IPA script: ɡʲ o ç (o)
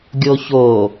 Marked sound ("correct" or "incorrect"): correct